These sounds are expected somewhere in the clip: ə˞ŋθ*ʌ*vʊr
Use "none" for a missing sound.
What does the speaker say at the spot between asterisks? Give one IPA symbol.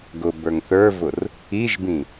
ə˞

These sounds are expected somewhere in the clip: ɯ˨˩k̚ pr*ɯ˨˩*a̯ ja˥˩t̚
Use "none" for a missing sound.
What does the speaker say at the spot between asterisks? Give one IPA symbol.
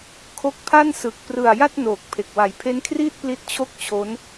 ɯ˨˩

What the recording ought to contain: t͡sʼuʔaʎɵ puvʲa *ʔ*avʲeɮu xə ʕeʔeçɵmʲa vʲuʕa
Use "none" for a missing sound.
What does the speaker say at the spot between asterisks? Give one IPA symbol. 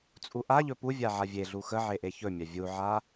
ʕ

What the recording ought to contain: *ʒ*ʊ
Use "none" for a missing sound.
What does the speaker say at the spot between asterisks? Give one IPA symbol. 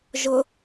ʒ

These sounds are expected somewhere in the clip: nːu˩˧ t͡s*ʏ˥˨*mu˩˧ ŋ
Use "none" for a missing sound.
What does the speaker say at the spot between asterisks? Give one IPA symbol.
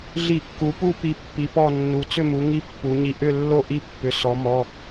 ʏ˥˨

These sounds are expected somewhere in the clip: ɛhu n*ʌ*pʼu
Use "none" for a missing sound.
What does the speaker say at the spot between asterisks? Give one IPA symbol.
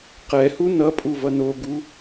ʌ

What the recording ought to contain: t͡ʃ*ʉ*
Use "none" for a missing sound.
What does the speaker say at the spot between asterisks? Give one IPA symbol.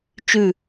ʉ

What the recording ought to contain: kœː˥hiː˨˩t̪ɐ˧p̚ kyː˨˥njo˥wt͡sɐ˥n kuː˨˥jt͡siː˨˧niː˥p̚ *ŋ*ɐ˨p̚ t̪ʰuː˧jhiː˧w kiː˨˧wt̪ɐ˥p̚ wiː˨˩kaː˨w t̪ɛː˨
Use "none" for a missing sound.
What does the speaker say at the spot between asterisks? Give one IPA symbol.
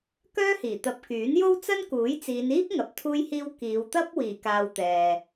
ŋ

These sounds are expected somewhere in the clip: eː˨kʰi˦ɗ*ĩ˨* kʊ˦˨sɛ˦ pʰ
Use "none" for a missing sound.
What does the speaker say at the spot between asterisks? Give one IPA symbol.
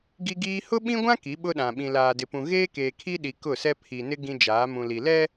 i˨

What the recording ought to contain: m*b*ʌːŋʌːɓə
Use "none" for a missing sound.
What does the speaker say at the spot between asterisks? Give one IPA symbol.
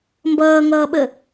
b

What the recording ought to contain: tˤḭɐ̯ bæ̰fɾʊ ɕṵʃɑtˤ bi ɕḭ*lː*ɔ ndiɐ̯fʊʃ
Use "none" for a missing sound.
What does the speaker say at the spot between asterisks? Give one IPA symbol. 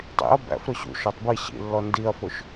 lː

